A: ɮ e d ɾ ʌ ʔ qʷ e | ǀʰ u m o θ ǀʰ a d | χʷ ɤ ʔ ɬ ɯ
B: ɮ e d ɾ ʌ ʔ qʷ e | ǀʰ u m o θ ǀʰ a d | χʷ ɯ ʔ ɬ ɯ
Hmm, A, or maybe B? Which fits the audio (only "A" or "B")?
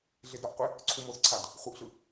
B